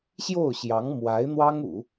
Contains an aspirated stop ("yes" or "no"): no